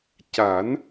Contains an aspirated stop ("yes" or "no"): no